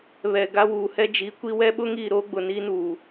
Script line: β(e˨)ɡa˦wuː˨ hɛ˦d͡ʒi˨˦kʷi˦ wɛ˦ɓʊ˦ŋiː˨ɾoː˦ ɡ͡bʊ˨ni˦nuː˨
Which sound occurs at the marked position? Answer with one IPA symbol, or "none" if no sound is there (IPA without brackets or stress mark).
ɛ˨